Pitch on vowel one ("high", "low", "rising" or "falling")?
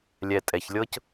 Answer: low